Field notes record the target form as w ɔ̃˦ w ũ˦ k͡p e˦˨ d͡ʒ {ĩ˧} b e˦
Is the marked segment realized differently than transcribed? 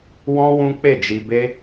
yes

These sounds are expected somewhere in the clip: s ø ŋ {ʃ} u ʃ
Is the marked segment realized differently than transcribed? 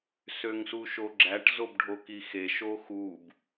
yes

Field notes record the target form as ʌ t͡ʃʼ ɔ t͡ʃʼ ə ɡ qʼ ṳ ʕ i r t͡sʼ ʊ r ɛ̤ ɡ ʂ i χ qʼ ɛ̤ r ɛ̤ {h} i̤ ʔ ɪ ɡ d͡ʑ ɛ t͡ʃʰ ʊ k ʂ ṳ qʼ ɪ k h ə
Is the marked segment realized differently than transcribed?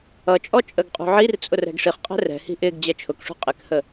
no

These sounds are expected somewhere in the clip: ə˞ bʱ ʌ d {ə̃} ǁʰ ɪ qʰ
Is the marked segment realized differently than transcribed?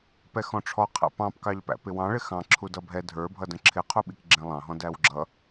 no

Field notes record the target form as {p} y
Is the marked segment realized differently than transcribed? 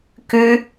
yes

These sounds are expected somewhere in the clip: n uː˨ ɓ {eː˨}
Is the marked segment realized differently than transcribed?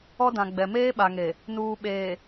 no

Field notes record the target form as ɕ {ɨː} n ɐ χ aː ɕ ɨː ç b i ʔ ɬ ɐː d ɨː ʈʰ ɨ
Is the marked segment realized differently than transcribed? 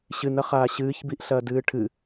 yes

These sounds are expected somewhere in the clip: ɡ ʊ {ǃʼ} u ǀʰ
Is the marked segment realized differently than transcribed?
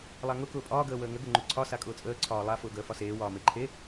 yes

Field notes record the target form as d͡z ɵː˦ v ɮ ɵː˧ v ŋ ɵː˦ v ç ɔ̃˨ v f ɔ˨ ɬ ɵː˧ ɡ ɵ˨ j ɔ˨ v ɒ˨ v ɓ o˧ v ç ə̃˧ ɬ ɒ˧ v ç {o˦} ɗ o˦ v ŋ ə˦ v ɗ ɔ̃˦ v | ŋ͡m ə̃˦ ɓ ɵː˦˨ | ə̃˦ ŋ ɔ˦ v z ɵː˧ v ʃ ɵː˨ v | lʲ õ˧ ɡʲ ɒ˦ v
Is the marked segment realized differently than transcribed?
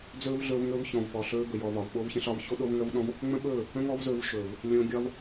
no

